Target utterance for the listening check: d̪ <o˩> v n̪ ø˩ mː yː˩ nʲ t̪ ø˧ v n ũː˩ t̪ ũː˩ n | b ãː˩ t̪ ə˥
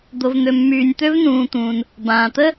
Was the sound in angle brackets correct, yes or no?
yes